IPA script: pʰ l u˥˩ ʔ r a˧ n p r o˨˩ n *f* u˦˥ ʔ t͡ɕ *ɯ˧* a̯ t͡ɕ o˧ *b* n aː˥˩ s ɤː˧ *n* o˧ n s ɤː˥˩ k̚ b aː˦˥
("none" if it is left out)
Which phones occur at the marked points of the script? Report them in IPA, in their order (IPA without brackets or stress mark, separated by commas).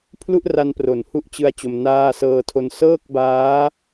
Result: h, ɯ˧, m, tʰ